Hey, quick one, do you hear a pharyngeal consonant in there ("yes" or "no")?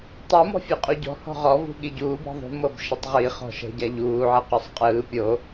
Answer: yes